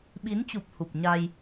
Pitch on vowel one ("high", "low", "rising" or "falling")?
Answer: rising